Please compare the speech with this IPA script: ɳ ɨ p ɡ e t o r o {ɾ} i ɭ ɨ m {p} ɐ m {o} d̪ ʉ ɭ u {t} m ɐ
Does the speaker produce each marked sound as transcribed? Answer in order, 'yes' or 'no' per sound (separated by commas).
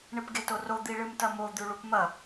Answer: no, no, yes, no